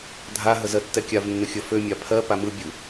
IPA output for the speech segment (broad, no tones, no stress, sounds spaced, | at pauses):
dʱ a ɦ ə z ɜ tː ɛ kʲ a v nː ə xʲ ə f ø mʲ a pʰ ɜ p a m ɯ bʲ ɯ